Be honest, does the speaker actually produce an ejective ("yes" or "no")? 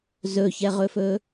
no